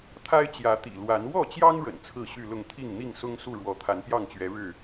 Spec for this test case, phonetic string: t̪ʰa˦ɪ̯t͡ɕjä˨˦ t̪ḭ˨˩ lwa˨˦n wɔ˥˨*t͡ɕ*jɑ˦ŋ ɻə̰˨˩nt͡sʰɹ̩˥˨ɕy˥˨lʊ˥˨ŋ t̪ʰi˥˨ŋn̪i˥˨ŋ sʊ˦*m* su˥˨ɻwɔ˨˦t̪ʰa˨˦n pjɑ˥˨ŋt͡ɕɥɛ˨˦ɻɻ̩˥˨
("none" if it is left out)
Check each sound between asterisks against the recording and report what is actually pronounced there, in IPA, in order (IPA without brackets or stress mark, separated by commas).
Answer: t͡ɕ, ŋ